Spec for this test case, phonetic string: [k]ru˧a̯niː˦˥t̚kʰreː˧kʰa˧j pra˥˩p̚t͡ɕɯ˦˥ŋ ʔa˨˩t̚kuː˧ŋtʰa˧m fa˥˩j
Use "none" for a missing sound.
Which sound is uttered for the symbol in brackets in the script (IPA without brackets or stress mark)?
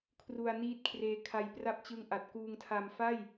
kʰ